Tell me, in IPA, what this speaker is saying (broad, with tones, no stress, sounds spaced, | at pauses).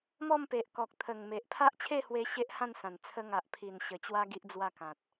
m ɔ˥˧ m p e˨ ʔ k ɔ˨ k̚ t̪ʰ ə˨˩ ŋ m e˨ ʔ pʰ a˦ ʔ t͡ɕʰ e˥˧ h w e˧ ɕ e˦ ʔ h ã˥˧ n s ã˨˩ n t͡sʰ ə˧ ŋ a˨ ʔ pʰ i˨˩ n ɕ ə˨˩ t͡ɕ w a˧ ɡ i˦ ʔ d͡z w a˥˧ k ã˨ t̚